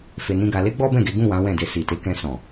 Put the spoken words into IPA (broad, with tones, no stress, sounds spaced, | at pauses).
f e˧ n ĩ˦ ɡ a˧ l e˦ ɡ͡b ɔ˦ b ɛ̃˦˨ ɡ e˨˦ ɡ ũ˦˨ w ã˨˦ w ɛ̃˦˨ d e˧ s i˨ t e˨˦ k ɛ̃˧ s ɔ̃˨